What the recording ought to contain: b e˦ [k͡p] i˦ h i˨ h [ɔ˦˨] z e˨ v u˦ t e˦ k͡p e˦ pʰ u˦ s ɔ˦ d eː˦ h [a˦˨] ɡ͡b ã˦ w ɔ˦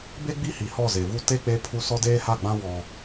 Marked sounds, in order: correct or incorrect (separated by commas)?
incorrect, correct, correct